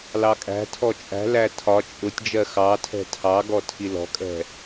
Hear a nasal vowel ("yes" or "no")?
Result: no